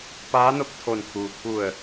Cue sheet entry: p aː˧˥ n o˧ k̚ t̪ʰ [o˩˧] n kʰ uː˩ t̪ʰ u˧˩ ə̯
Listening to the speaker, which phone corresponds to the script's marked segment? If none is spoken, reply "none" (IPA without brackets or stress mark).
o˧˩